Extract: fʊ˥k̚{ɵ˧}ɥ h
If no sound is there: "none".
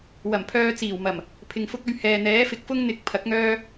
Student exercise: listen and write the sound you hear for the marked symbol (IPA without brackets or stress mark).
ɵ˧